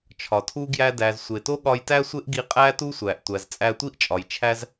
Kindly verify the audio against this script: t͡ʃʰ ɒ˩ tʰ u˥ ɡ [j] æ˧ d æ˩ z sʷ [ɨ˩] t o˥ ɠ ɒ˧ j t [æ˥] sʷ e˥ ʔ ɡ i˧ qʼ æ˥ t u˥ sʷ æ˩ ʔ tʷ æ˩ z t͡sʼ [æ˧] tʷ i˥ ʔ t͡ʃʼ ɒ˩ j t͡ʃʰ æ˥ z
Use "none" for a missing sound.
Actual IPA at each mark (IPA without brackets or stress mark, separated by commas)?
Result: j, e˩, æ˥, æ˧